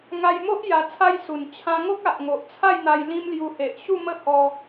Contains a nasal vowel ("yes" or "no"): yes